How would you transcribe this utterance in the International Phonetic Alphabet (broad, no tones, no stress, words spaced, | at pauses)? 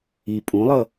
i pʼũlˠʌ